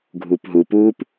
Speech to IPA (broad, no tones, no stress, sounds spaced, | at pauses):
ɡʱ uː p ɦ u p uː p